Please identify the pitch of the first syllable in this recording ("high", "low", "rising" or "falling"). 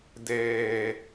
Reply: low